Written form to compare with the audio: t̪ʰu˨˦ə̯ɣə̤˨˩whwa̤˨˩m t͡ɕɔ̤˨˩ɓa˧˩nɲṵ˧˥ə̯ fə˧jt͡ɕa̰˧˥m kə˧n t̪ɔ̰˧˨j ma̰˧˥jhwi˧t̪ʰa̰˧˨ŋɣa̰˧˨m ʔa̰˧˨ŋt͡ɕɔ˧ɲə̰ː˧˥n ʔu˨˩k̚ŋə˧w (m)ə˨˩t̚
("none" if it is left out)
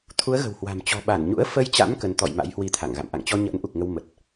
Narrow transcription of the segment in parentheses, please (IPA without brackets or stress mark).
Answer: m